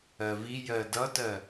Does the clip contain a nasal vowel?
no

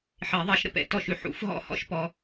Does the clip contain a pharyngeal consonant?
yes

